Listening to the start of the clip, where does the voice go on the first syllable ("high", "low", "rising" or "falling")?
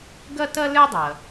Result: high